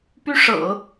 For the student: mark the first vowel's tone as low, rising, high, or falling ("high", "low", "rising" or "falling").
high